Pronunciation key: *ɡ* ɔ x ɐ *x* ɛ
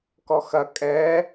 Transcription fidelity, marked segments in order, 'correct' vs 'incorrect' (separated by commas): incorrect, incorrect